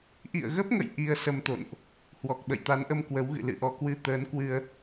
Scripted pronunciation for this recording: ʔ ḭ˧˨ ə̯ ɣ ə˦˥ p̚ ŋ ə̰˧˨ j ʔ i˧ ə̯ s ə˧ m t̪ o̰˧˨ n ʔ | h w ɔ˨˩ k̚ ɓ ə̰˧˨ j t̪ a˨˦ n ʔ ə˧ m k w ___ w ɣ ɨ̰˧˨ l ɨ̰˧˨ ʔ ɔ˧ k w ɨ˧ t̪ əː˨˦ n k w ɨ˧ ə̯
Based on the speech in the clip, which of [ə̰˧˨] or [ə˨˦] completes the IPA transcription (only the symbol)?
ə˨˦